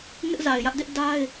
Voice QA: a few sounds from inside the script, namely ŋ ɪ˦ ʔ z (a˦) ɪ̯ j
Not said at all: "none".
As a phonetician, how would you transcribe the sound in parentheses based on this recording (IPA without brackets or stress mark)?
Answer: a˨